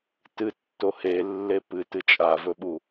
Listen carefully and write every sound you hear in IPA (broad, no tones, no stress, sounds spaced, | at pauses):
t ɨ tː o h e lː e p ɨ t ɨ t͡ʃʼ a v ɵ ɓ u